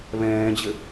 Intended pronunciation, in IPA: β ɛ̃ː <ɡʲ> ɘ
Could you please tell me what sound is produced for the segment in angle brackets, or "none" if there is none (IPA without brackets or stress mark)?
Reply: d͡ʑ